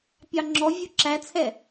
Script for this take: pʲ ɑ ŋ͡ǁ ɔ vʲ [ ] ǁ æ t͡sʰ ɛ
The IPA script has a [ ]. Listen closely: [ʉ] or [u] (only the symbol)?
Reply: u